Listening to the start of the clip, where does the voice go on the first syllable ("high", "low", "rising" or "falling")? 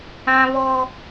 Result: high